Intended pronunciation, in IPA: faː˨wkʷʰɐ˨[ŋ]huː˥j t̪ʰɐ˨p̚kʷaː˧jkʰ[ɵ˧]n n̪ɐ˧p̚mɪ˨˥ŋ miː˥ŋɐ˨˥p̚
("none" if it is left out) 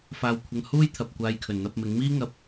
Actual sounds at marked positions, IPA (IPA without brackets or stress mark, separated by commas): ŋ, ɵ˨˩